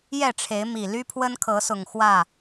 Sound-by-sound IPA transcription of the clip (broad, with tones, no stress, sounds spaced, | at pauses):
j ɛ˥˨ ʈ͡ʂʰ e˨˦ ɪ̯ m i˨˩ l y˦ pʰ w ə˦ n kʰ ɤ˨˦ s ʊ˨˩ ŋ x w ä˥˨